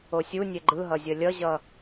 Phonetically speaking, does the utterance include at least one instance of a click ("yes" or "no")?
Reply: yes